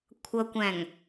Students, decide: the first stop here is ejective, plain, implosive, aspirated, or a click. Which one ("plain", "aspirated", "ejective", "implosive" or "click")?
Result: aspirated